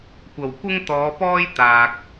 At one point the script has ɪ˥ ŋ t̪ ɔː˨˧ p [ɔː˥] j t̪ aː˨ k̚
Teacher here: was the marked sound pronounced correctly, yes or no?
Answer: yes